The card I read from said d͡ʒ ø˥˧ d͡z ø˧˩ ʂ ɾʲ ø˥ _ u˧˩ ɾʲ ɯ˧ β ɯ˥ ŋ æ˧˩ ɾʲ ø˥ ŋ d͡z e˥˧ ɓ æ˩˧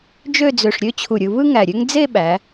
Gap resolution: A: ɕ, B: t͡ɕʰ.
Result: B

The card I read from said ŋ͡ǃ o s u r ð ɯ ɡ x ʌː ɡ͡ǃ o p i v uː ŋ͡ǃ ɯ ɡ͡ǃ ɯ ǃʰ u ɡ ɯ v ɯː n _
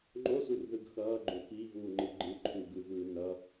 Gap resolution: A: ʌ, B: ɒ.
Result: A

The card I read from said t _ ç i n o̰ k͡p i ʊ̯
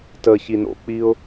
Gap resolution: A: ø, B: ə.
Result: B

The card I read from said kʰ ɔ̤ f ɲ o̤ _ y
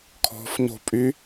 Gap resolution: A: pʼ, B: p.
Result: A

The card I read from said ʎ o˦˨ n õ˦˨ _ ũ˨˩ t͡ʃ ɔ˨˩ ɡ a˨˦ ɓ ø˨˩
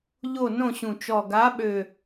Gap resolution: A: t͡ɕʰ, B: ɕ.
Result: B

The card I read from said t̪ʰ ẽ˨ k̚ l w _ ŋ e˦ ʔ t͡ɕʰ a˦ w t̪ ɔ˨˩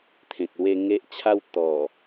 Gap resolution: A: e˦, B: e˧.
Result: A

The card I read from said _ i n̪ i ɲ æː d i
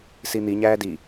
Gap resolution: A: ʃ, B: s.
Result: B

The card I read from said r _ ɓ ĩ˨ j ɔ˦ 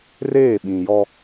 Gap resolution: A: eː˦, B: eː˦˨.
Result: B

